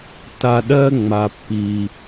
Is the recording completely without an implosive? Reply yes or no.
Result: no